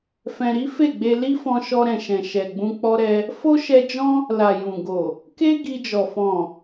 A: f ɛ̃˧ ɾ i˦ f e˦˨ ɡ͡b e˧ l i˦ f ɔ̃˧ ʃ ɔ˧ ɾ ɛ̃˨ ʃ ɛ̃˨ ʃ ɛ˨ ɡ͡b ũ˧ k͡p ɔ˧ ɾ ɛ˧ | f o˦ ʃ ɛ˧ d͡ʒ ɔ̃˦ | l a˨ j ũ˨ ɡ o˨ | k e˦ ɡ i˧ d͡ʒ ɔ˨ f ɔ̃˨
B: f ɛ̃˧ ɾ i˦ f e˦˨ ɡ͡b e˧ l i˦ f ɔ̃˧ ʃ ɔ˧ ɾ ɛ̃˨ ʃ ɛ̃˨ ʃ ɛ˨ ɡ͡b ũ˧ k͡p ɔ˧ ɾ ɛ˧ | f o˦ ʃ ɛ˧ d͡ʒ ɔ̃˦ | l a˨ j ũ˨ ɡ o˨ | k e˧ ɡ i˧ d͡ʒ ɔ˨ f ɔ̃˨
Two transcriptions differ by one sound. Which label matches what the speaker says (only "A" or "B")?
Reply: A